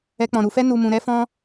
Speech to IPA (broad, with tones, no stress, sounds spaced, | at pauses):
ɛ˦ k͡p ɔ̃˧ ɾ u˧ f ɛ˦ n u˧ m ũ˧ ɾ ɛ˦ f ɔ̃˦